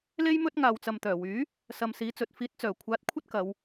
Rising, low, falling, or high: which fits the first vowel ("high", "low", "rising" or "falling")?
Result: high